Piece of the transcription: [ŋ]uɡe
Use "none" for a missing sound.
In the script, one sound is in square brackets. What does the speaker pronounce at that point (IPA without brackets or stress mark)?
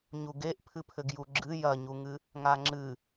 ɲ